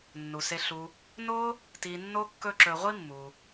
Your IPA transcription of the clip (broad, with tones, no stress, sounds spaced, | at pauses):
nː u˩ s e˨ ɬ u˨ | n o˥ | t i˨ nː o˥ kː ɵ˦ ǁ ɵ˨ ʁʷ i˥ mː u˩